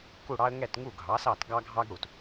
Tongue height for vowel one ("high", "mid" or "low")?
high